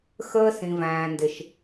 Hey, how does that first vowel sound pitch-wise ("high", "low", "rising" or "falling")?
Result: high